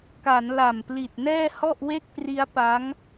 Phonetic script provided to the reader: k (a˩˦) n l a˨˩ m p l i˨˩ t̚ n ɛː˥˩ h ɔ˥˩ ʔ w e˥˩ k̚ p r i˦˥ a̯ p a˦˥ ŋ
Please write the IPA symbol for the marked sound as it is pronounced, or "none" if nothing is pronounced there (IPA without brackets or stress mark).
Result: a˩˦